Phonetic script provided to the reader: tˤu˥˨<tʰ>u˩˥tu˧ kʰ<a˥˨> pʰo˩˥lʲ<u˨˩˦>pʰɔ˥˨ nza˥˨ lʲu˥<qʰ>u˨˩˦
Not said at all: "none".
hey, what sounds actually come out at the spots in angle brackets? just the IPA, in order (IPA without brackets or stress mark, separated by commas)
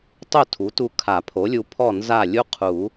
tʰ, a˨˩˦, u˧, qʰ